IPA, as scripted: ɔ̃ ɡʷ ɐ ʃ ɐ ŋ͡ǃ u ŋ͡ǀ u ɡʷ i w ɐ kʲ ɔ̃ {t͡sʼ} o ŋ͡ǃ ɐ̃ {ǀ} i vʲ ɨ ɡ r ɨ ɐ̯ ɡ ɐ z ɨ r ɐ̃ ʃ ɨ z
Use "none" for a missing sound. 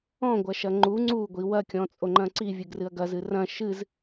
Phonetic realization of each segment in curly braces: t͡sʼ, ǀ

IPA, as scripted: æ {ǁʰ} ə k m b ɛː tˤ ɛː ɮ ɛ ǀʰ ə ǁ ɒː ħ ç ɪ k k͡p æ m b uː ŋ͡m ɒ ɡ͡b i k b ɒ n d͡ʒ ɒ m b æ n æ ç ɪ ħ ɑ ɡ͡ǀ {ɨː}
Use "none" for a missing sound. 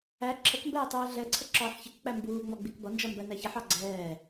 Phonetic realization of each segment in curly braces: ǁʰ, ɛː

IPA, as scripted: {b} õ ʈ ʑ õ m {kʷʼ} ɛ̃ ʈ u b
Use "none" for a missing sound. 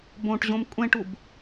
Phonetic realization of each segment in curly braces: b, kʷʼ

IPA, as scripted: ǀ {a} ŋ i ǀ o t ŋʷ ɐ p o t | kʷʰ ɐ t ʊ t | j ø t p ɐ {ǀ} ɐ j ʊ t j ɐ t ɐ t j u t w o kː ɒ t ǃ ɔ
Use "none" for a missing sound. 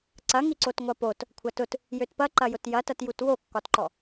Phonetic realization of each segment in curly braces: ɐ, ǃ

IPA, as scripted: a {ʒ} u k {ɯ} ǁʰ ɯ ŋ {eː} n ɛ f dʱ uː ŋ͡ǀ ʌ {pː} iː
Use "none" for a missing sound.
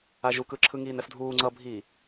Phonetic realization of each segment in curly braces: ʒ, ɯ, iː, bʱ

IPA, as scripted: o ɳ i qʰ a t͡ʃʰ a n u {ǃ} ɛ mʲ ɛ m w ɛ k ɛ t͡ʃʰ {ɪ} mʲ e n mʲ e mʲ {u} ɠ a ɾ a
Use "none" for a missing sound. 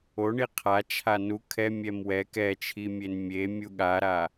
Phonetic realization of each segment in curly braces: kʰ, i, u

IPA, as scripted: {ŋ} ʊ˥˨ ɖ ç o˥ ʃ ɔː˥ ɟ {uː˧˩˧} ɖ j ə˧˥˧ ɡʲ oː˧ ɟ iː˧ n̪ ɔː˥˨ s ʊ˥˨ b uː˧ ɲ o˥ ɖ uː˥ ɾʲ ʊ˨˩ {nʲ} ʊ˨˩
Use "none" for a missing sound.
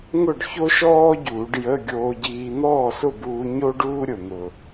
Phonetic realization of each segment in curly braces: ŋ, uː˧˩˧, n̪

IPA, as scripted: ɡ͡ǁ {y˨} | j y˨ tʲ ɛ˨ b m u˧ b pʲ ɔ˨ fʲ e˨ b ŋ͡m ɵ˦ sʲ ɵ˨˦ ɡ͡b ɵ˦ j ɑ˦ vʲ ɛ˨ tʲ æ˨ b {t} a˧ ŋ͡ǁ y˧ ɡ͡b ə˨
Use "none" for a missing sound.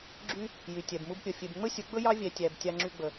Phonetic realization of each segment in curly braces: y˦, tʲ

